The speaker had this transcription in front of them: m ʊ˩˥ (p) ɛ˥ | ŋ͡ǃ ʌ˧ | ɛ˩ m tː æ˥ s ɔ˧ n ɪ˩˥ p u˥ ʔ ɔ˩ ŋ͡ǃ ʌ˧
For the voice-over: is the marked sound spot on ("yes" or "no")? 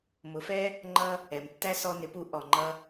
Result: no